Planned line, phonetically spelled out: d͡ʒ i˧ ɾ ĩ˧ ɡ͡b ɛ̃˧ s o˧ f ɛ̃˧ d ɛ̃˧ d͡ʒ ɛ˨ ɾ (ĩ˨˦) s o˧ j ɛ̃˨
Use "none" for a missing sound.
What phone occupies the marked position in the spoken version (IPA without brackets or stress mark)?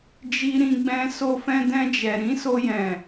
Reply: ĩ˨˦